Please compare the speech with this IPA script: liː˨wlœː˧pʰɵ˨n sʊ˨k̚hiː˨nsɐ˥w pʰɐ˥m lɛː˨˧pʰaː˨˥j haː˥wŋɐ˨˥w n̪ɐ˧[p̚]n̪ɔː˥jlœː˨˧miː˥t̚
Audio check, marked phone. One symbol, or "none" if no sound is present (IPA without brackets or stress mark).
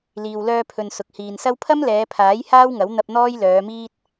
p̚